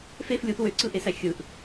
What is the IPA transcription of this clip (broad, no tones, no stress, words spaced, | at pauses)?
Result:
fef lʲuθ wøǀɯʔesæ xʲɯʔ